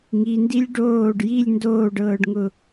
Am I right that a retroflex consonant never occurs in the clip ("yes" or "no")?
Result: no